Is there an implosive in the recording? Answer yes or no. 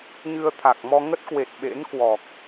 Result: yes